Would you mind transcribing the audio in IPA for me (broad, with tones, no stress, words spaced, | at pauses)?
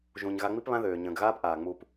ʒũ˨ɲ ɣa˧ŋ͡mi˦pβã˦ðøː˨ ɲə̃ː˨ɡɣaː˦pʔaː˨ ŋ͡mu˨p